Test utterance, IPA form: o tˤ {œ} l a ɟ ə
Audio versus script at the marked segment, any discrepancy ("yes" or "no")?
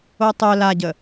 no